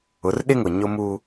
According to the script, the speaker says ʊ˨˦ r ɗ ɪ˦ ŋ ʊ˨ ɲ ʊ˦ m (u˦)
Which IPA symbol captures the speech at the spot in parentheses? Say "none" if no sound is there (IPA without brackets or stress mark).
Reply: uː˦